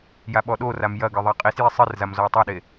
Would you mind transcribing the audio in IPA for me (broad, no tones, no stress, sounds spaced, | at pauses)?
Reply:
j a ɓ ɔ ɗ o r a m j ɐ ɡ ɨ ðˤ a qʼ i s j i sˤ ɨ r z a m z ɔ o̯ tˤ a ɗ e